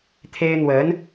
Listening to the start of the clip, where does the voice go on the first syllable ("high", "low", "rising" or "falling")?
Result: high